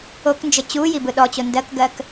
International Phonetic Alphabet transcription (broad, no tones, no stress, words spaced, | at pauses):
oknd͡ʒə t͡ɕuji bɯɗɔt͡ɕo ndɜkɡɜk